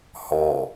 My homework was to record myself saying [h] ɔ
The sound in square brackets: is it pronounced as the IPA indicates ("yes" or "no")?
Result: yes